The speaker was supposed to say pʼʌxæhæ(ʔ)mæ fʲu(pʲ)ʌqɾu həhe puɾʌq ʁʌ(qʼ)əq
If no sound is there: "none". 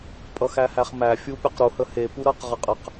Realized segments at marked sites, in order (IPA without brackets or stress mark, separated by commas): χ, pʲ, qʼ